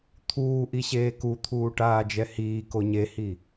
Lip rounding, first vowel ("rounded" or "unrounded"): rounded